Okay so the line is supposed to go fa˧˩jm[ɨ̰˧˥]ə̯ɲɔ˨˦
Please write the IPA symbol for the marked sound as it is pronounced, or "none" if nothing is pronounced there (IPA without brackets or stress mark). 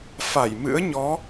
ɨ̰˧˥